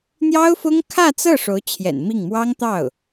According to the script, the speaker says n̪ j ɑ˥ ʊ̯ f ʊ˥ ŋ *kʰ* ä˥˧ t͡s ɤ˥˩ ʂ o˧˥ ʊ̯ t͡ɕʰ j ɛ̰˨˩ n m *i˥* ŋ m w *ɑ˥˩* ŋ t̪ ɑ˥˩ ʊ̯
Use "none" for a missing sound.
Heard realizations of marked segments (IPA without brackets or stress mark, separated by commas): kʰ, i˥˩, ɑ˥